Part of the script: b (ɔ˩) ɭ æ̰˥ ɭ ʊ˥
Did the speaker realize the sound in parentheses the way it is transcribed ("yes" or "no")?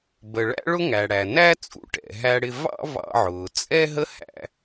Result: no